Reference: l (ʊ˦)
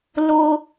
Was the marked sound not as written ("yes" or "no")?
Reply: no